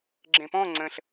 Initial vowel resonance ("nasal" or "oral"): nasal